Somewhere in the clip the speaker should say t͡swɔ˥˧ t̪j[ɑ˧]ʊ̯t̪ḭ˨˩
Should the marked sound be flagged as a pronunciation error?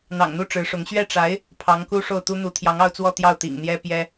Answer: yes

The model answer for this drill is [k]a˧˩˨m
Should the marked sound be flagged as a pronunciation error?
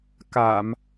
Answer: no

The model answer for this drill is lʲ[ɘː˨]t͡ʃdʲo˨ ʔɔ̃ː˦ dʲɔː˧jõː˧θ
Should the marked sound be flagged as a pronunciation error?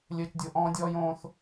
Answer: no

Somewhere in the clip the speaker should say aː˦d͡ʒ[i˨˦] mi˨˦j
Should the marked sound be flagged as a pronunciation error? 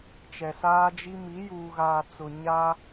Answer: yes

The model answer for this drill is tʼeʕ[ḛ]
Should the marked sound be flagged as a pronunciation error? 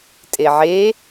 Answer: yes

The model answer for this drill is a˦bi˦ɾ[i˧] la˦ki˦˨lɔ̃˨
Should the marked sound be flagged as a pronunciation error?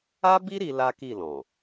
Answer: no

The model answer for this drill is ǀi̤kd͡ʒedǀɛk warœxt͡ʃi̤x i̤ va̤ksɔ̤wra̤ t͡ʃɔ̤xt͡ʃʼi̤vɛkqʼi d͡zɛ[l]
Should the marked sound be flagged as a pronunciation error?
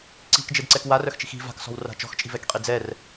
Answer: yes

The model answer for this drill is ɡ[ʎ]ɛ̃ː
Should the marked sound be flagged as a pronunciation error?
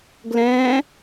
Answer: yes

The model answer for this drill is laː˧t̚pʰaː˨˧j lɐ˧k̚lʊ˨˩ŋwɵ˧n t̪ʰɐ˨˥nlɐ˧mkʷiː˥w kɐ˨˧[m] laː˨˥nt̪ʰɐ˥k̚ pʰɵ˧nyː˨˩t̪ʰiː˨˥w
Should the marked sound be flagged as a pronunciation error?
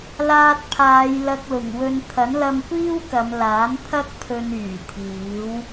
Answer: no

